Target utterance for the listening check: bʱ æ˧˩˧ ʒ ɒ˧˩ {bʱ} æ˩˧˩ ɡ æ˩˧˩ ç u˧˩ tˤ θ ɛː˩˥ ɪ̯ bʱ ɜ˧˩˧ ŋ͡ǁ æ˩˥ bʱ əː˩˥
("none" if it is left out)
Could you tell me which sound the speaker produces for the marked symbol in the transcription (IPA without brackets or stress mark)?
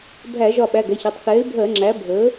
ɓ